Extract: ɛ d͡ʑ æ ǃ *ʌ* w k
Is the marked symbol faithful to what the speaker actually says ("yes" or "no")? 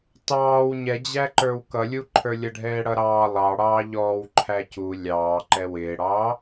no